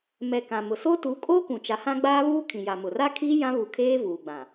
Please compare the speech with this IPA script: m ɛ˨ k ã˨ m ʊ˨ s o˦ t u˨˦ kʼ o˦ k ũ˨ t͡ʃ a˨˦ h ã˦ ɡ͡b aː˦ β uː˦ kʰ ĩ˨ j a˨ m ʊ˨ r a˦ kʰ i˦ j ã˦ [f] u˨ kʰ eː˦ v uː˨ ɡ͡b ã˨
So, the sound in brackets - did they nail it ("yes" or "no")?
no